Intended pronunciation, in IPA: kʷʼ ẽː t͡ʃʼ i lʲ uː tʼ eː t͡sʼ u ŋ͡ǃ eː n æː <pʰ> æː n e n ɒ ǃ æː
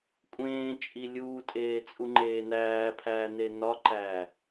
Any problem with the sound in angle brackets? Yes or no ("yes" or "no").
no